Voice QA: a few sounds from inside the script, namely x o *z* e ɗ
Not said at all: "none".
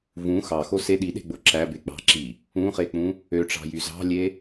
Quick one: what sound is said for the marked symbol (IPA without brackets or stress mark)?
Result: s